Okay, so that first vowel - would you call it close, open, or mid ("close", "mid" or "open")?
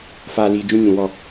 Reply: open